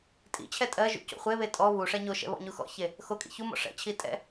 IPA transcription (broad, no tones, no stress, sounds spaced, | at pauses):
tʼ ḭ t͡ɕʰ ɛ tʼ ɜ ʒ ṵ c o̰ χʷ e β e tʼ ɔ β u ʂ ɛ ɲ o ʃ ɛ̰ β ɔ̰ ɲ u x ɔ̰ ç e | x o kʼ ḭ ç u m ɔ̰ ʂ ɛ̰ t͡ɕʰ i tʼ ɛ̰